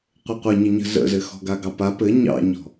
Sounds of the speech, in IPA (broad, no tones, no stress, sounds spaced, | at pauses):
qʷ ɘ qʷ ɘ ɲ ə ɲ ə̤ z ə̰ z ɘ x ɔ̤ ɡ a ɡ ɑ p a p ɘ ɲ ɑ̰ ɲ ɔ̤